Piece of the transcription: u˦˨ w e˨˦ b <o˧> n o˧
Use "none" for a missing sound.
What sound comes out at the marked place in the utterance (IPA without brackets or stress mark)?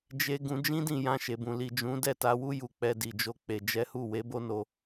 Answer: o˦